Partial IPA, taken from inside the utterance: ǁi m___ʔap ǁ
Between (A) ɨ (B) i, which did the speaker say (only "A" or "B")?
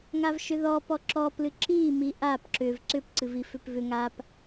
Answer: B